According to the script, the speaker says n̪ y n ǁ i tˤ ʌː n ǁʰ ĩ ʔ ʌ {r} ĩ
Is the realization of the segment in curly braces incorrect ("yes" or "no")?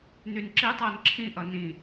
yes